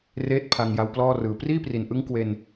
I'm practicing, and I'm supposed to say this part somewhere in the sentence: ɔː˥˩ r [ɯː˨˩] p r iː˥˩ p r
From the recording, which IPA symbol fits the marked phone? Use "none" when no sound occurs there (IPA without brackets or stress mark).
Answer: ɯː˨˩